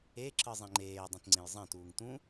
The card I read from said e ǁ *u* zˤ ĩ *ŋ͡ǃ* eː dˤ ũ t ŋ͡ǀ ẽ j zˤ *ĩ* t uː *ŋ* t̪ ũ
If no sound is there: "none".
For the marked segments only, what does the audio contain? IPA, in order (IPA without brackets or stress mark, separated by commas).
ɯ, ŋ͡ǃ, ẽ, ŋ